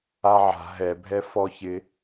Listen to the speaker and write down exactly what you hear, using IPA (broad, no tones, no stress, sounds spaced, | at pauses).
a ʕ a̤ ɦ ɛ bʱ ɛ f ɔ ç ɪ